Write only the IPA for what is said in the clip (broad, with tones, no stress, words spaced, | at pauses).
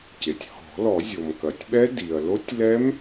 ce˩tʲhɔ̤˨˩˦lɔ˨˩˦ zʲo˩mkɐ˩tʲɓɛ˦˥ di˩ɐ̯lo˦˥tʲ lɛ˦˥m